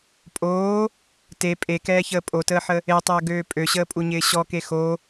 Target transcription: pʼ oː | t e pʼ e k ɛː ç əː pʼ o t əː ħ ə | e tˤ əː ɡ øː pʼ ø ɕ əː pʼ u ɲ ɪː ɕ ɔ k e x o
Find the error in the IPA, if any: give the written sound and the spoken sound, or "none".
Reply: none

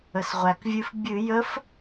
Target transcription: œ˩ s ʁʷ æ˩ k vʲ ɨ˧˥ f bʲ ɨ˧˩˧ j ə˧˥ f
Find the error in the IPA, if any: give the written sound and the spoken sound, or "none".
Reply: œ˩ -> ə˩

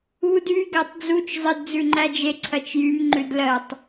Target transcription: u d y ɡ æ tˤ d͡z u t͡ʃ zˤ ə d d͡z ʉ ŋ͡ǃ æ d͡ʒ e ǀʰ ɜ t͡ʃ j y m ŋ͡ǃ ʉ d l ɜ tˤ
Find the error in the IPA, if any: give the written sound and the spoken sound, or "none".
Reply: none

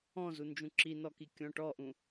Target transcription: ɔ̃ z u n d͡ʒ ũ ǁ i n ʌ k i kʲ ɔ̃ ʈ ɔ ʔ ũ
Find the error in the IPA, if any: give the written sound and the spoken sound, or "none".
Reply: ʌ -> ɔ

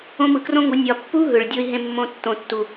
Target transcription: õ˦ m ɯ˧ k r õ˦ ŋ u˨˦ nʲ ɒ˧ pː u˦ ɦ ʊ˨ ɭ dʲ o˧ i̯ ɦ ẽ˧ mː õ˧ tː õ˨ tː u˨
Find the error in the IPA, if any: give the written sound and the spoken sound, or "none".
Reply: ʊ˨ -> ɯ˨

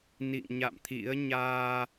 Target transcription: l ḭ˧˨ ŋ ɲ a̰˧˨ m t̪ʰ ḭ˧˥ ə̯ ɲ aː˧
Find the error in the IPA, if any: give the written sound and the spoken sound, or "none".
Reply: l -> n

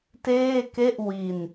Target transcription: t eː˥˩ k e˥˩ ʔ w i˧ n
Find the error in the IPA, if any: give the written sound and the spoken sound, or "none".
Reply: none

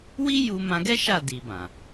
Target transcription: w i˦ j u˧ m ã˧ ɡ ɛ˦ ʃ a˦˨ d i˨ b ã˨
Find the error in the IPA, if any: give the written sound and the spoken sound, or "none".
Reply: none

